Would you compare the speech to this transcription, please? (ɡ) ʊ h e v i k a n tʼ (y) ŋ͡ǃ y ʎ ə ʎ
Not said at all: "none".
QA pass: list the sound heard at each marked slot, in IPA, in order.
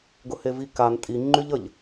ɡ, i

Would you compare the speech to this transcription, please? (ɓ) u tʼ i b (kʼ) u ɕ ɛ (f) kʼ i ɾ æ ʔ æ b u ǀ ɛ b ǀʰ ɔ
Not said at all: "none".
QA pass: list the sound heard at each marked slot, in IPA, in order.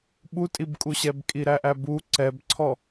ɓ, kʼ, b

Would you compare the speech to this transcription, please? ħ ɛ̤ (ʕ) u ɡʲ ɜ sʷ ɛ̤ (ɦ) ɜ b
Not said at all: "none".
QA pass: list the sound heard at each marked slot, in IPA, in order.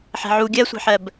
ʕ, ħ

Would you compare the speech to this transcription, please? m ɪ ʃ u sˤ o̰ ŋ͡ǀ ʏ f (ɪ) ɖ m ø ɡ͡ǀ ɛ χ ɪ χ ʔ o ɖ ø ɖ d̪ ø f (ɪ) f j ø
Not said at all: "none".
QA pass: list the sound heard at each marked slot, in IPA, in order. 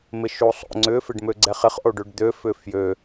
ɪ, ʏ

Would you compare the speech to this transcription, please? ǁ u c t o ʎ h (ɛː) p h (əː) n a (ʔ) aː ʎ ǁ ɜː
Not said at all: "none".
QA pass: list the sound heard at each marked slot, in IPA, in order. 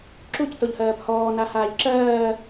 ɜː, ɔː, h

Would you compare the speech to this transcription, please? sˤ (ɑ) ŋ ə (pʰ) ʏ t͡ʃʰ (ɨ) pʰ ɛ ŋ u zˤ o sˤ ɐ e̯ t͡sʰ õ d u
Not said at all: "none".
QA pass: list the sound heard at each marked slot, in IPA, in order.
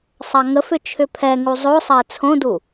ɑ, f, ʏ

